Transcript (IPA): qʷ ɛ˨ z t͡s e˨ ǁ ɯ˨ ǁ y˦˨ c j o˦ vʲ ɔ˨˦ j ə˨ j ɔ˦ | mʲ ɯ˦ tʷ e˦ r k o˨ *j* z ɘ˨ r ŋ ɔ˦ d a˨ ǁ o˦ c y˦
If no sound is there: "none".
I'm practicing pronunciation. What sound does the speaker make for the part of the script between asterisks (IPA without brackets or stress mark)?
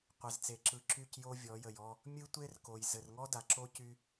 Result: j